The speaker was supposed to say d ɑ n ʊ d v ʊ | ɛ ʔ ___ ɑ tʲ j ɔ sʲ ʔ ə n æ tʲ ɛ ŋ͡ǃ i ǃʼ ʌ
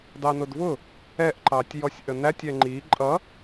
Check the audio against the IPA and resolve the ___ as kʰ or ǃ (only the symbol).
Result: ǃ